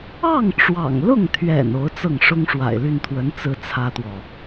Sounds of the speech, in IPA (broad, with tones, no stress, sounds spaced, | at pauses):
ɑ˥˩ ŋ ʈ͡ʂ w ɑ̰˨˩ ŋ l ʊ˥˩ ŋ t̪ʰ ɥ ɛ̰˨˩ n o˧˥ ʊ̯ t͡s ɤ˥˩ ŋ ʂ ʊ˥ ŋ ʂ w a̰˨˩ ɪ̯ l y˥˩ n t̪ʰ w ə˧˥ n t͡s ɹ̩˥ t͡sʰ ä˥ t̪ w ɔ˨